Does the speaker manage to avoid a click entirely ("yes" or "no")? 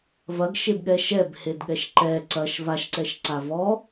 no